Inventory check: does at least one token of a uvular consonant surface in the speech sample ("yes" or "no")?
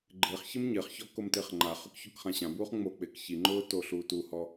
yes